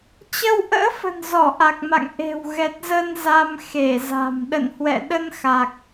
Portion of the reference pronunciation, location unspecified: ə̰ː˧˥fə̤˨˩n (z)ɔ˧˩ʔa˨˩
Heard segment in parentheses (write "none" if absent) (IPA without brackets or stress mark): z